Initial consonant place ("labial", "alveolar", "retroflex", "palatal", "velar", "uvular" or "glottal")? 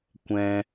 velar